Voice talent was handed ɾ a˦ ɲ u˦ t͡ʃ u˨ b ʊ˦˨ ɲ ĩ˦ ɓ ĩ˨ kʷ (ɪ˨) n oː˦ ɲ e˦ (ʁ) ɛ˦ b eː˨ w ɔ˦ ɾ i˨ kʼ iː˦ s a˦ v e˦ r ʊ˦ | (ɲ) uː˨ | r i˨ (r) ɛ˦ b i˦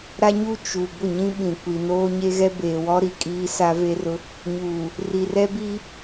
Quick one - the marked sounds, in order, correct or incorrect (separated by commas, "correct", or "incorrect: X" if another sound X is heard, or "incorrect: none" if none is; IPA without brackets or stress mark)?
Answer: incorrect: i˨, incorrect: ɣ, correct, correct